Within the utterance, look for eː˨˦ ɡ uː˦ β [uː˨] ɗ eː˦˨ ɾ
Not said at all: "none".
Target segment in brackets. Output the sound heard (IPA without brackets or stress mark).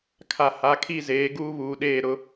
uː˨